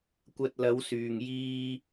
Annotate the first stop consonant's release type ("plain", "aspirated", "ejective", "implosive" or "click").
plain